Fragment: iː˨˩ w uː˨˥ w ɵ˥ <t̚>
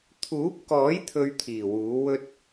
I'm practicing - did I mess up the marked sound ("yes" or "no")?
no